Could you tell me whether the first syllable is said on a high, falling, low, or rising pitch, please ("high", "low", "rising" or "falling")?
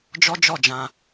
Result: high